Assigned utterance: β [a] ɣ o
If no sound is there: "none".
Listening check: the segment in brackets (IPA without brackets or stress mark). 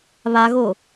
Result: a